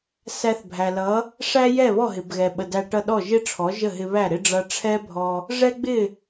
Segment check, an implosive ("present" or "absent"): present